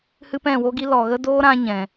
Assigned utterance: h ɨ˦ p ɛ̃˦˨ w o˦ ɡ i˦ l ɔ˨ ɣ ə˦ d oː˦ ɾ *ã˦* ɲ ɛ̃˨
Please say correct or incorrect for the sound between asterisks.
correct